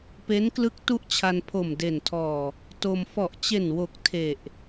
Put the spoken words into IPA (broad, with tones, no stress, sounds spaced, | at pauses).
p e˦˥ n k l ɯ˦˥ k̚ t u˥˩ ʔ t͡ɕʰ a˧ n pʰ o˨˩ m d e˨˩ n tʰ ɔː˨˩ | t o˧ m f ɔ˨˩ ʔ t͡ɕ e˨˩ n w o˨˩ k̚ tʰ e˨˩ ʔ